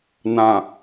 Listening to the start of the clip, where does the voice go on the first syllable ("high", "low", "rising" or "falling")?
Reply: low